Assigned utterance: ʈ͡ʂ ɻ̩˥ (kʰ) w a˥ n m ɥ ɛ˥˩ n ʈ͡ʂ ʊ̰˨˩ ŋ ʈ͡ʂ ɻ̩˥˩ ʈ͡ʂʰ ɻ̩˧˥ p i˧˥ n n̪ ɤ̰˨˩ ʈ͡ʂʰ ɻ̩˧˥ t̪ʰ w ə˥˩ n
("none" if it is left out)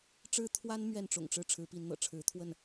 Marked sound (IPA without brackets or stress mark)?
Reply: t̪ʰ